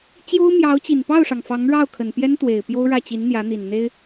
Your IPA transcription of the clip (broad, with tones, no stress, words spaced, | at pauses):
t͡ɕjo˥ʊ̯mjɑ˧˥ʊ̯t͡ɕi˨˩n pɑ˥˩ʊ̯ʂɑ˩ŋ fɑ˧˥ŋɻɑ˥˩ʊ̯kʰə˨˩n pjɛ˥nt̪we˨˩ɪ̯ pjo˥ʊ̯ɻä˥˩ t͡ɕi˧˥nn̪jä˧˥n̪i˨˩n n̪e˥ɪ̯